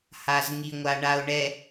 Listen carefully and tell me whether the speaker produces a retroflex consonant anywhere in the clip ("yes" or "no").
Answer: yes